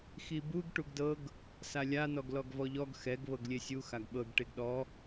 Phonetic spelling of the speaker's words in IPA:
x i b u ɡ ʈ u ɡ d ɤ ɡ | s a lʲ a n ɔ ɡ l ɔ ɡ v ɔ ʎ ɔ ɡ x ɛ ɡ β ɤ ɡ lʲ e sʲ u x a ɡ ɓ ɤ ɡ ʈ e ɡ ɗ ɔ

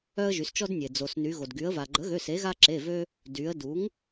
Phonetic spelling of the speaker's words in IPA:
œ˦ ə̯ ʒ y˩˧ s t͡ʃ ɔ˦ d nʲ e˩ d͡z o˩ s n y˩˧ ɣ o˩ d ɡ y˩˧ ə̯ v a˩ ɡ͡ǃ ə˩˥ ɣ ø˩˧˩ s e˩˥ ɣ a˦ ǁ e˩˧˩ v ø˦ | d y˩˧ ə̯ d u˩˥ ŋ

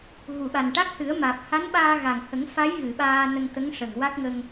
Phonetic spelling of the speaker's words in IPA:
ɣ u˨˩˨ ɓ a˨˩ n ʈ a˦˥ k̚ h ɨ˨˩˦ ə̯ m aː˨˩ p̚ h a˧˥ n ɓ aː˧ ɣ a˨˩ ŋ h ə˨˩˦ ŋ f a˧˥ j ɣ ɨ˨˩˨ ɓ aː˧ n ə˧ ŋ t̪ ə˧˥ ŋ ʂ ə˨˩ ŋ w a˦˥ k̚ ŋ ə˧ ŋ

